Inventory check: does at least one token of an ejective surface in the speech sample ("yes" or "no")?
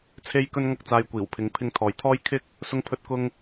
no